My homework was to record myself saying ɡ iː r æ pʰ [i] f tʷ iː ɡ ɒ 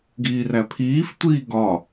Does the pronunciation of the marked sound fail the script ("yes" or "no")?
yes